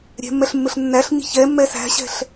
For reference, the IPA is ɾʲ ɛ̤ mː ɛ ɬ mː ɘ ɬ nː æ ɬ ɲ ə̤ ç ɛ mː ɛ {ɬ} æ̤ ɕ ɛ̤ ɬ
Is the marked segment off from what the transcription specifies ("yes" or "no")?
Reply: yes